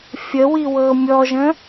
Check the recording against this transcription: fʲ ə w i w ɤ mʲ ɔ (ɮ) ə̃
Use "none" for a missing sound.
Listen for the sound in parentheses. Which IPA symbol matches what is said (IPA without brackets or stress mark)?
ʒ